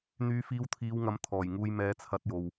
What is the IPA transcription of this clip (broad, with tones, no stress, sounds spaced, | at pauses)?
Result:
n̪ yː˨˧ f iː˧ w t̪ʰ iː˨˧ w ŋ ɐ˨˥ m t̪ʰ ɔː˨˩ j ŋ uː˧ j m ɛː˨˧ t͡sʰ ɐ˧ t̚ j o˨ w